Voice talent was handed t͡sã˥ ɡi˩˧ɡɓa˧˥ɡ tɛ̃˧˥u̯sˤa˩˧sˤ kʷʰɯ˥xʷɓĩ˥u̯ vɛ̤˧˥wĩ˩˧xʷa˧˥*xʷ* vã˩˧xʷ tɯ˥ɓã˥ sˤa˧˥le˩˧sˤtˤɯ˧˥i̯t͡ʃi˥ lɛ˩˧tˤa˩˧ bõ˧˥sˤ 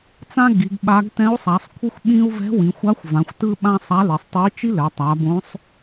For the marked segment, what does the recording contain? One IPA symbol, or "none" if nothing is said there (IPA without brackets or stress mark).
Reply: xʷ